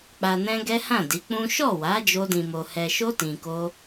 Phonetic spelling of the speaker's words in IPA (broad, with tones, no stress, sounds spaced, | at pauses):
k͡p a˧ n ɛ̃˦ ɡ ɛ˦ h ã˦˨ d i˨˦ k͡p ũ˦ ʃ ɔ˦˨ w a˨˦ d͡ʒ o˦ d ĩ˧ m o˧ h ɛ˧ ʃ o˦ t ĩ˧ k o˦